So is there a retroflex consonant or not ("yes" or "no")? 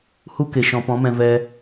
no